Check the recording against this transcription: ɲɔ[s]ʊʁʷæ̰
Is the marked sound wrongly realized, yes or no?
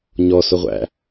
no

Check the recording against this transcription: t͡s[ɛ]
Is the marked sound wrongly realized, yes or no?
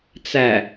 yes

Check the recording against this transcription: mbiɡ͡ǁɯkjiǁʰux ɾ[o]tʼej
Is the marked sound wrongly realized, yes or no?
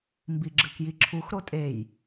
no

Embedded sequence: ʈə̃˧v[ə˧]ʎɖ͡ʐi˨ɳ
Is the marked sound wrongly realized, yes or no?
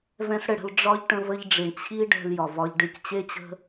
no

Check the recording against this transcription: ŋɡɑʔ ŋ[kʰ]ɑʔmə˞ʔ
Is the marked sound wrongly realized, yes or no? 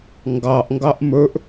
yes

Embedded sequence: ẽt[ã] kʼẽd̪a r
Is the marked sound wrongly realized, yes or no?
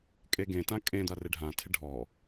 no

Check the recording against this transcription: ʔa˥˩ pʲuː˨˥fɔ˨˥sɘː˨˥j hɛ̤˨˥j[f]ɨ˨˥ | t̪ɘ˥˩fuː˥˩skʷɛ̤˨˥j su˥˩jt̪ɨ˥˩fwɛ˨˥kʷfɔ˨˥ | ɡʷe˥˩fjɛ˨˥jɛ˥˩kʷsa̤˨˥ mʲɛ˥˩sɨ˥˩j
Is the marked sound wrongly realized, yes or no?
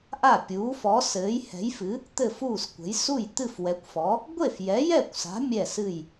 no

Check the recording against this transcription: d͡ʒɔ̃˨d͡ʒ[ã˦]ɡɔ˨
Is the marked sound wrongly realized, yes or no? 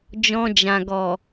yes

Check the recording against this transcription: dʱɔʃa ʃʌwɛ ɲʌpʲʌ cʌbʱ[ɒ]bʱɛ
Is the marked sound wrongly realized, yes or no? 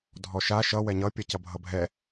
yes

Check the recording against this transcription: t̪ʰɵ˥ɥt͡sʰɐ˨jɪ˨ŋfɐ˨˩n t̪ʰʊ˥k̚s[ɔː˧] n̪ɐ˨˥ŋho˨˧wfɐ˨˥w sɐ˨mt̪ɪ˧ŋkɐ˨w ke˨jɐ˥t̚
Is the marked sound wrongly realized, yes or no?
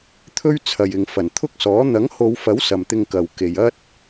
yes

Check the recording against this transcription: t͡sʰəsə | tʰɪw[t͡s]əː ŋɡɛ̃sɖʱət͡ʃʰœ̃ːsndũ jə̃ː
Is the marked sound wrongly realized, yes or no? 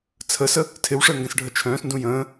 yes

